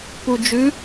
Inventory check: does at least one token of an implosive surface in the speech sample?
no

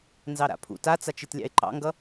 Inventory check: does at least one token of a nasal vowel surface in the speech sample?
no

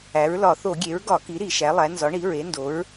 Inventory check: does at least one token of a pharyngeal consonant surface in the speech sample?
no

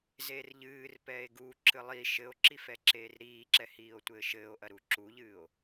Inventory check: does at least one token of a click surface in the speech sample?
yes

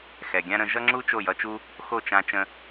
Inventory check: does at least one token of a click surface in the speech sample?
yes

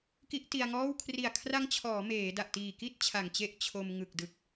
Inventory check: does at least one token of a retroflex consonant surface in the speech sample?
no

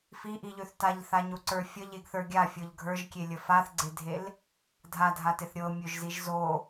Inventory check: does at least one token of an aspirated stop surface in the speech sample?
no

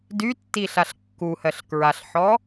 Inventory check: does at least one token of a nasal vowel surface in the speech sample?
no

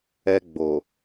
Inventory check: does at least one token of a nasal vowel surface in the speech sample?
no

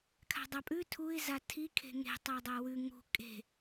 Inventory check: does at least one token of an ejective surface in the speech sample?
yes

